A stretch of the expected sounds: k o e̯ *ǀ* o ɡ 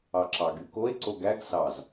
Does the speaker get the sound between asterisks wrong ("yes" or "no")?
no